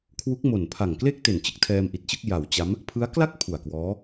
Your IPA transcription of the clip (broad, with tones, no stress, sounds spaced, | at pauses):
kʰ w u˦˥ k̚ m o˨˩ n pʰ a˨˩ ŋ k l e˥˩ k̚ t e˨˩ n t͡ɕ ɯ˥˩ k̚ tʰ ɛː˧ m ʔ i˨˩ t̚ t͡ɕ ɯ˥˩ k̚ j a˩˦ w t͡ɕ a˦˥ m | pʰ ɯ˦˥ a̯ k l a˥˩ k̚ pʰ u˨˩ a̯ k w ɔː˦˥